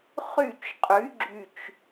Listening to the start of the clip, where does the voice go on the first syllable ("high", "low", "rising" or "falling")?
falling